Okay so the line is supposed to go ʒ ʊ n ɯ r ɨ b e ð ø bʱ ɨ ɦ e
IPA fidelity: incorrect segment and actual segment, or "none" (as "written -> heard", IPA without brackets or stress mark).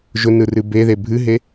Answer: ø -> e